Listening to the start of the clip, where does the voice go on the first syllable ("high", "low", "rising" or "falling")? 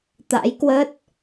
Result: rising